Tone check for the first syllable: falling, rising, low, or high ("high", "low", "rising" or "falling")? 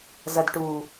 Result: low